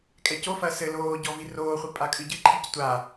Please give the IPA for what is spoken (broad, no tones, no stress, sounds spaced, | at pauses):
kʼ ɛ c o f ɐː s ɘ l oː ɟ ɔ v i r oː χʷ i pʼ a kʼ ɨ ɟ ɨ ǃʰ i c tʷ a